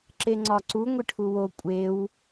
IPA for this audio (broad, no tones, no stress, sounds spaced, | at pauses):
ǁ e ŋ͡ǀ ɒ ǀ u ŋʷ i ʈʰ u w o kʷʼ e w